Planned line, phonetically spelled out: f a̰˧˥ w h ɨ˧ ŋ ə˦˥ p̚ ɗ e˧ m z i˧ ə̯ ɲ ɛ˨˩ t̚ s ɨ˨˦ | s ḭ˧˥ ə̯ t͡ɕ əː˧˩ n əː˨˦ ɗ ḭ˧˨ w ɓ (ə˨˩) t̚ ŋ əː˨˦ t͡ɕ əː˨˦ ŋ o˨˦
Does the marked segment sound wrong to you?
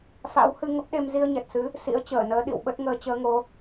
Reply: yes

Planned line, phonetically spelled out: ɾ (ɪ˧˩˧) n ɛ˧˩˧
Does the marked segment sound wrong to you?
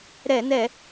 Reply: yes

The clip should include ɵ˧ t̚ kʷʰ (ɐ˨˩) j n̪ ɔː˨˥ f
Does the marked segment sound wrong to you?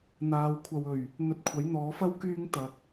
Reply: yes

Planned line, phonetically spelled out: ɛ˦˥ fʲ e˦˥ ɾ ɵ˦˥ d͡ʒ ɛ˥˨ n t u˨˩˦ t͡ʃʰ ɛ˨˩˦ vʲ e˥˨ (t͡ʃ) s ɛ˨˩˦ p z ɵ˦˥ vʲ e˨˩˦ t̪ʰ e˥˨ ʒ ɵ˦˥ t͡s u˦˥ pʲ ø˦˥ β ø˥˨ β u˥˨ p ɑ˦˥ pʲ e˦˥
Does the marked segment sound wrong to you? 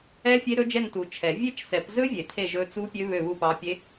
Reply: no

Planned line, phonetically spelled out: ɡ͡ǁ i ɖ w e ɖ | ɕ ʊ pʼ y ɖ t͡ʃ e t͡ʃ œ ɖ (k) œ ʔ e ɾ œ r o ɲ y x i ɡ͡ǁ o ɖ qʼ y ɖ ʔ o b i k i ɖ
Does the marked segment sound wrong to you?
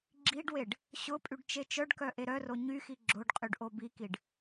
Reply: no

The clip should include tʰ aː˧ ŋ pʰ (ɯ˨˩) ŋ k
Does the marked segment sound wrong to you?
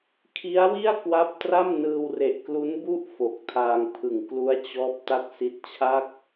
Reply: no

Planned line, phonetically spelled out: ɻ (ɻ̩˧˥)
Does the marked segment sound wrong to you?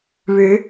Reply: no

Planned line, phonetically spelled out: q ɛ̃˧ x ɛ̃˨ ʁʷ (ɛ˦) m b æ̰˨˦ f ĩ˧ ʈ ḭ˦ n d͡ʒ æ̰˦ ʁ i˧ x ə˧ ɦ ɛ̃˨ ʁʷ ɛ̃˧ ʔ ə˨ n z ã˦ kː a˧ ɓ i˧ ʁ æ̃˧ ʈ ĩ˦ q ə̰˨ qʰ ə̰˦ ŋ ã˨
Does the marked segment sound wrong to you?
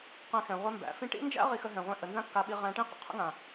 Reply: no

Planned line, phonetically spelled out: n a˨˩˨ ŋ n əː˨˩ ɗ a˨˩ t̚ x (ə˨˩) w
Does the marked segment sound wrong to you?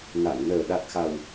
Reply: yes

